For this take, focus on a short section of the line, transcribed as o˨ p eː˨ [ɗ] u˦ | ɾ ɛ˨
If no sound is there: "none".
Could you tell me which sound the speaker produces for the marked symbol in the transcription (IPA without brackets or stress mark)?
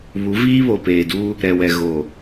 d